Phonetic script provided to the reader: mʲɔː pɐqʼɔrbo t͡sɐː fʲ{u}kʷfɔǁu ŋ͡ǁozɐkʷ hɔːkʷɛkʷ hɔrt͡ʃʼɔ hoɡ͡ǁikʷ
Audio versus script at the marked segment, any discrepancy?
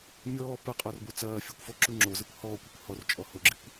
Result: no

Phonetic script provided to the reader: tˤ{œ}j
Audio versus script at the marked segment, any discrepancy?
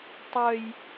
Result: no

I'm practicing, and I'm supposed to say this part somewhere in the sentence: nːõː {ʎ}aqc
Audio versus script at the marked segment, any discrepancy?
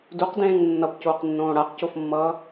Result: yes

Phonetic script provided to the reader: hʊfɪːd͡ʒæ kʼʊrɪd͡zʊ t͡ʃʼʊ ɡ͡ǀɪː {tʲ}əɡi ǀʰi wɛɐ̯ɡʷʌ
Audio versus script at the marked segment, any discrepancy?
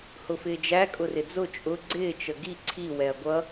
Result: yes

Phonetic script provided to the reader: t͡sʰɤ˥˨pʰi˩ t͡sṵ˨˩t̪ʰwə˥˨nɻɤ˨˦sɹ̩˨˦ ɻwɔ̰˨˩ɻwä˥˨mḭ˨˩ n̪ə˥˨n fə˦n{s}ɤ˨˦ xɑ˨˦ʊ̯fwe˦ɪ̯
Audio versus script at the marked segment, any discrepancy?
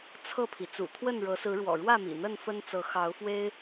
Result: yes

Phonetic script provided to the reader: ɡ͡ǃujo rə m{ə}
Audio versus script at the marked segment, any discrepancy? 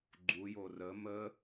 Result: no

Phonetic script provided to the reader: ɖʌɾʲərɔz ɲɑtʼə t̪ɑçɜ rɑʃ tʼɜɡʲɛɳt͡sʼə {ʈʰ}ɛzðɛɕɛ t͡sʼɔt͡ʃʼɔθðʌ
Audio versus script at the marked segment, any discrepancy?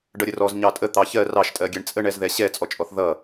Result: yes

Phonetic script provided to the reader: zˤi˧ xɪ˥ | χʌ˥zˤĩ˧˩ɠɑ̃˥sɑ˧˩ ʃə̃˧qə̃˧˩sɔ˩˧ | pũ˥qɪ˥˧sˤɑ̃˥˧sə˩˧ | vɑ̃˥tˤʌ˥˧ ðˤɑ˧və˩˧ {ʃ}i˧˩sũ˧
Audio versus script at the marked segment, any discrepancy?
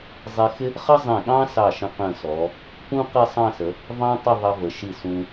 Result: no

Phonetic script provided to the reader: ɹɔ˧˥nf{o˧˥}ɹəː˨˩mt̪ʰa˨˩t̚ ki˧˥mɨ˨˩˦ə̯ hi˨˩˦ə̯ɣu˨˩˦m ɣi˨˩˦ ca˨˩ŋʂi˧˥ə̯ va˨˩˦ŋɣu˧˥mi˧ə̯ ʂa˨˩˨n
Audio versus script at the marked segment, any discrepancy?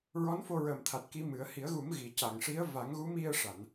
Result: yes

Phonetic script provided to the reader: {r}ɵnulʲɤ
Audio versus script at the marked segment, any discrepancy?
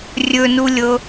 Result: yes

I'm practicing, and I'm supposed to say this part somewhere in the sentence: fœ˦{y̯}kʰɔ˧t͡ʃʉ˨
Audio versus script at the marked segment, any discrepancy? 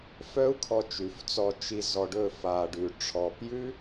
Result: yes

